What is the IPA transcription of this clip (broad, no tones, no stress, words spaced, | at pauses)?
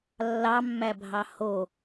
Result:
lːɑmːæbʱɑ ho